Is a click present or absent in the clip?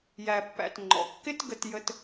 present